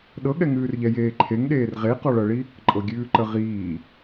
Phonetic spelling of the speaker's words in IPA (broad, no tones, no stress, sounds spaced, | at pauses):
ɗ ɤ ɠ ɛ ŋ ʉː r ʎ ɛ j eː ǃʰ e ŋ ɗ eː r ʁ e q ɔ ɭ ɤ ɭ i | ǃʼ ɤ ɡʲ ʉː ǃ ə ʁ iː